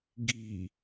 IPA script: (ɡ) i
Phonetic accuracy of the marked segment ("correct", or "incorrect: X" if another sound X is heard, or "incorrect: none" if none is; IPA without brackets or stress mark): correct